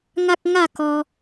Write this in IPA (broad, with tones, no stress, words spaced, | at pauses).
ŋa˦k̚ŋa˥˧kɔ˧